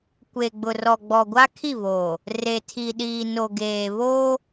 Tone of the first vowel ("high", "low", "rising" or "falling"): low